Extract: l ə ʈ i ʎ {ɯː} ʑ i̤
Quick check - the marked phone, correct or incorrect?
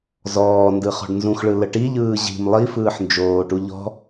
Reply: correct